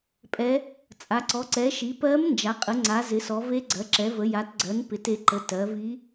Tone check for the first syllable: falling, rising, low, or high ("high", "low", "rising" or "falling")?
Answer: rising